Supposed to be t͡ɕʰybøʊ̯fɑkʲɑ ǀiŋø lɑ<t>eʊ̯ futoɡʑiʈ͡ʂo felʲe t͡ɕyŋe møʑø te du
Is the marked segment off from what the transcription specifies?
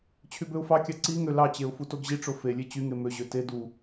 yes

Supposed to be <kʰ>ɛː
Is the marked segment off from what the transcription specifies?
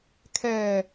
no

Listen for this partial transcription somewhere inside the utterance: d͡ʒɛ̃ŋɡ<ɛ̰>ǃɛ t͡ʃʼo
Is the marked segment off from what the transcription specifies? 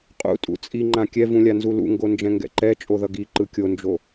no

